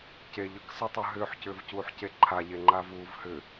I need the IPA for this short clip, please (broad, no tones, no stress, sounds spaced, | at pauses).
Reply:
c e ʎ ɯ k s ɯ tˤ ɯ ɦ ʏː ħ c ʏː v c uː ħ c e ǃʰ a ʎ e ŋ͡ǃ aː v uː v h ʏ